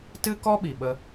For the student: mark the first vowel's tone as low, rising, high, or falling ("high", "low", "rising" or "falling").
high